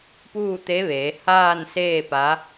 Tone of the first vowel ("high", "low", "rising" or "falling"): falling